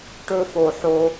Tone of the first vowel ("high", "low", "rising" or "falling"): high